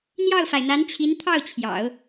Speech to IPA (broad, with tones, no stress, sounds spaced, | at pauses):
n̪ j ɑ˥˩ ʊ̯ f a˩ ɪ̯ n̪ a˧˥ n t͡ɕʰ i˧˥ n t̪ʰ ɑ˥˩ ʊ̯ t͡ɕʰ j ɑ̰˨˩˦ ʊ̯